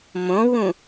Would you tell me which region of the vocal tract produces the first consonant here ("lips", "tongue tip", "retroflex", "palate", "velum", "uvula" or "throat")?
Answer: lips